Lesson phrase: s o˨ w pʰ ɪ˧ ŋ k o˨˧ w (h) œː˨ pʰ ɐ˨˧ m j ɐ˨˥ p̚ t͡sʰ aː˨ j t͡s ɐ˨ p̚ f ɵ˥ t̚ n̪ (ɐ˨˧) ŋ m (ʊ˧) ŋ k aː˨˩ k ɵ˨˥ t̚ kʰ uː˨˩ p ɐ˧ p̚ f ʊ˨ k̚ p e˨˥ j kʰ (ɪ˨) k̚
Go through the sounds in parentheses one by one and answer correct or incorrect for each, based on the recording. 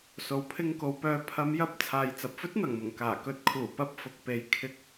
incorrect, incorrect, incorrect, incorrect

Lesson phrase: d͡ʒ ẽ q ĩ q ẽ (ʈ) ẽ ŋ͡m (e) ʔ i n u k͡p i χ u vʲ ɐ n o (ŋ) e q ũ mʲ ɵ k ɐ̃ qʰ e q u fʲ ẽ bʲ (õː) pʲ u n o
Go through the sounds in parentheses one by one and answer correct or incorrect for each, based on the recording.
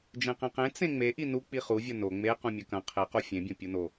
incorrect, correct, incorrect, incorrect

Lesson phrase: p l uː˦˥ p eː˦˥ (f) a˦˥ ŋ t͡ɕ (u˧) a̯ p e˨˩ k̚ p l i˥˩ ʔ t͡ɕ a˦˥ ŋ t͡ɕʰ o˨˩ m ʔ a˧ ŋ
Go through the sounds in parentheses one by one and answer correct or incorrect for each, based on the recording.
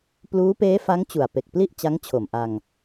correct, incorrect

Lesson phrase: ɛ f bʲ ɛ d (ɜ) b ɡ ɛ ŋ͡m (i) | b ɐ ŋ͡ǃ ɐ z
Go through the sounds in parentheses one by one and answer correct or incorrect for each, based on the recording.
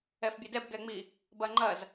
incorrect, correct

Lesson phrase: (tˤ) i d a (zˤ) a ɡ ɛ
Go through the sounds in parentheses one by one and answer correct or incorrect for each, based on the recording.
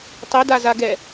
correct, incorrect

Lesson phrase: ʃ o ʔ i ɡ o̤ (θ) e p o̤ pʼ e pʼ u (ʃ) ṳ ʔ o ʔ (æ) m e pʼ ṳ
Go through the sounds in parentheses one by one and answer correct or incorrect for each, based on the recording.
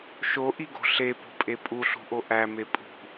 incorrect, incorrect, correct

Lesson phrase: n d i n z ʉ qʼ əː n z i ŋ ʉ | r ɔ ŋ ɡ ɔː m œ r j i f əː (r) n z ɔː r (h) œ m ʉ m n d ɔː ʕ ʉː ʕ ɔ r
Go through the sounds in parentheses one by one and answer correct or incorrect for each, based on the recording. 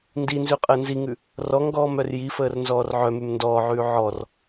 correct, incorrect

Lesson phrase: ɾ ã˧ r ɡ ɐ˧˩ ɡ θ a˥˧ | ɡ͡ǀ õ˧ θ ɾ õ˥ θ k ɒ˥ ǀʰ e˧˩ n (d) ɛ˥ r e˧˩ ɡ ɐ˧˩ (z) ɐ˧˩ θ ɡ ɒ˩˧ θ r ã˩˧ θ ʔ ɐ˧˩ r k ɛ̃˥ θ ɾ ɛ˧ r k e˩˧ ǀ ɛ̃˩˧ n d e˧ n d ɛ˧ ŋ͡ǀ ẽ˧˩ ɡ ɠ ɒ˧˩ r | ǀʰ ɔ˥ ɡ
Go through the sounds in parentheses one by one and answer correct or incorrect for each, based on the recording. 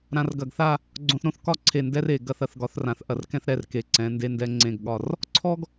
correct, incorrect

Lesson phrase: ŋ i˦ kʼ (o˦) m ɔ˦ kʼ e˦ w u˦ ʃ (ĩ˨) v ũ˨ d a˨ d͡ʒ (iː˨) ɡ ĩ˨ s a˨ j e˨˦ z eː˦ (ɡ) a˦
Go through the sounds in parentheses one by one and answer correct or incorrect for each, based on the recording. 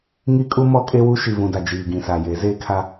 incorrect, incorrect, correct, incorrect

